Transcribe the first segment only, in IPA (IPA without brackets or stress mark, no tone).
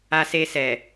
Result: a